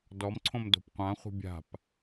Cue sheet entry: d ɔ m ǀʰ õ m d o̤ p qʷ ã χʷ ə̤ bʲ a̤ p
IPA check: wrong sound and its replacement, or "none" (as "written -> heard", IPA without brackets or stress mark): none